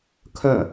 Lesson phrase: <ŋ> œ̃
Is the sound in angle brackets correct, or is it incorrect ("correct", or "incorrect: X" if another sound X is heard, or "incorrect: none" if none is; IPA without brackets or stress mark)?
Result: incorrect: kʰ